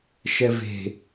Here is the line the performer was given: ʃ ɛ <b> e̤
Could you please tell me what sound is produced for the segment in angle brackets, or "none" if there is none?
v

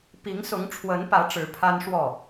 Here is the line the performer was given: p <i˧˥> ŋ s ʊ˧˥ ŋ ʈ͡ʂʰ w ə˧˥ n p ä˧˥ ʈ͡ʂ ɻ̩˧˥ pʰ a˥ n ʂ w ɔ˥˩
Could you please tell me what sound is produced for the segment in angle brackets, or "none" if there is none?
i˧˥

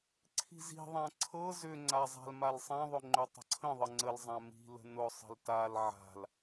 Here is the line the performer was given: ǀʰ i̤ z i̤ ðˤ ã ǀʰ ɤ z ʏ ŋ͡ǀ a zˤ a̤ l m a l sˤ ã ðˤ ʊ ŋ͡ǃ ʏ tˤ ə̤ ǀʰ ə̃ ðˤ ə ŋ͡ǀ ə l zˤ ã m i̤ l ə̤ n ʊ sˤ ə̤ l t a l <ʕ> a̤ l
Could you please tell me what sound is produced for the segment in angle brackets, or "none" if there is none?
ʕ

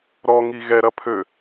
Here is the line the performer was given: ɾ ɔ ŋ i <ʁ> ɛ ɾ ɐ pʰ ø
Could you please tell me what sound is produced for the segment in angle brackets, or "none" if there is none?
ɣ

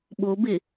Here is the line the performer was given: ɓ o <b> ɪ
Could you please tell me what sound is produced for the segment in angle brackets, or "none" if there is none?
b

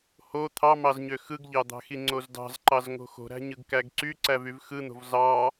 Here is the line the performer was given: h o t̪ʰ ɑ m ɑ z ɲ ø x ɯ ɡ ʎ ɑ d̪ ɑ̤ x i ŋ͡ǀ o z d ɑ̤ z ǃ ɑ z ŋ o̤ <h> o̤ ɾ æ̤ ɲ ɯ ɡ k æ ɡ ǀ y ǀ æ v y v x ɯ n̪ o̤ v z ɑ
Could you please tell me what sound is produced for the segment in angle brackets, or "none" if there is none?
x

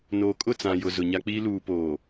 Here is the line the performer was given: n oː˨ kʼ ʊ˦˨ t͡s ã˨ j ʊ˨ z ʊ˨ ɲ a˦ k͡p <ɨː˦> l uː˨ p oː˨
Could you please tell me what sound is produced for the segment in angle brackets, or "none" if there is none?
iː˦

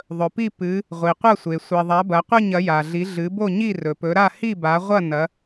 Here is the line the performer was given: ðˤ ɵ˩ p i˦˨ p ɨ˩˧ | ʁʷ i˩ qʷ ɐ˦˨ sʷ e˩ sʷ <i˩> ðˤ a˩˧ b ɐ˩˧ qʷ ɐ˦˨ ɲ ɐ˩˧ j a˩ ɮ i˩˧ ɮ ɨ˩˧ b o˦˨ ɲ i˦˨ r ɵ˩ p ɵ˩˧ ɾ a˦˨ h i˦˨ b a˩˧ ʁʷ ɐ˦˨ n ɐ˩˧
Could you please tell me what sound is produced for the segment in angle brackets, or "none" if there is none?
i˩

